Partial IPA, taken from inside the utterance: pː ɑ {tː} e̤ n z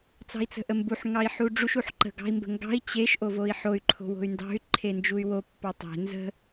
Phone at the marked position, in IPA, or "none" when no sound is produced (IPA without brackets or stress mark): tˤ